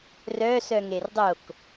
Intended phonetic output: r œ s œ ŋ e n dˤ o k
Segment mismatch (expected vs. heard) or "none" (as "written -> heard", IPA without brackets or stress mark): n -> r